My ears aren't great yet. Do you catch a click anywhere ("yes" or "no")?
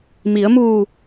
no